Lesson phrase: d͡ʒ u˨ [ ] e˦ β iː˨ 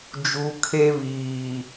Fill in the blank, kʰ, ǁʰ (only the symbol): kʰ